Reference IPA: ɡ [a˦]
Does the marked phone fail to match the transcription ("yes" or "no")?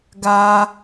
yes